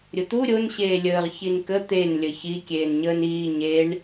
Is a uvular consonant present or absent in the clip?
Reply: present